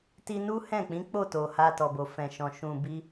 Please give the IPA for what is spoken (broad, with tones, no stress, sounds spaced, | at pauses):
t i˧ n u˦ h ɛ̃˦˨ k͡p ĩ˨˦ k͡p o˦˨ t o˨ h a˨ t ɔ˨ b o˨ f ɛ̃˨ ʃ ɔ̃˨ ʃ ũ˨ b i˧